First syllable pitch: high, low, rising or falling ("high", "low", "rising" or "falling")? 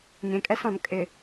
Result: low